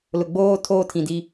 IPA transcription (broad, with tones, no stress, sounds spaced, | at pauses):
l ʊ˨ ɡ͡b oː˦ tʰ oː˦ tʰ ĩ˨ d i˦